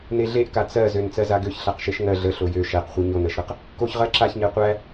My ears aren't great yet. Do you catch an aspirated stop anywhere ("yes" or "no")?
no